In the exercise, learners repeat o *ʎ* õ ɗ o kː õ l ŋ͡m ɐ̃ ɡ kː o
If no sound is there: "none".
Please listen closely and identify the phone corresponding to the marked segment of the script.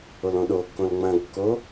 l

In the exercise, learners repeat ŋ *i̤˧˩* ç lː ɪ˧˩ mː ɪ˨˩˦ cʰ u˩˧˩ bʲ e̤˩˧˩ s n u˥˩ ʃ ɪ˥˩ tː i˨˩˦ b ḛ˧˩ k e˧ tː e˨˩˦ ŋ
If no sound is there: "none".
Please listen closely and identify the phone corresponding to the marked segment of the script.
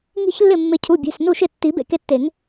i̤˧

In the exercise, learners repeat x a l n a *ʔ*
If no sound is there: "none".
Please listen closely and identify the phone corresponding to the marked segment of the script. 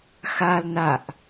ʔ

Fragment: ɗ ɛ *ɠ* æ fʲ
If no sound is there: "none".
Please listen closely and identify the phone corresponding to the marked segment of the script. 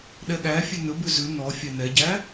ɠ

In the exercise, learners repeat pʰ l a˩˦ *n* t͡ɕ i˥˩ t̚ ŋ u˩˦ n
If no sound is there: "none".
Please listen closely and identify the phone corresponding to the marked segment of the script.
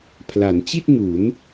n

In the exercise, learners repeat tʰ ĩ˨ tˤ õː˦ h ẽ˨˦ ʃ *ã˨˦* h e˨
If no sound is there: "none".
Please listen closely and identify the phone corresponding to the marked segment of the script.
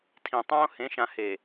ã˨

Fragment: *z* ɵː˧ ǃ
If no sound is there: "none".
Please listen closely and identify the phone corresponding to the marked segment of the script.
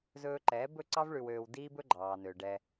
z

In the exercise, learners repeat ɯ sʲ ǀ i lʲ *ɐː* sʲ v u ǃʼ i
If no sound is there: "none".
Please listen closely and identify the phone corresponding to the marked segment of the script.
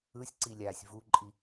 aː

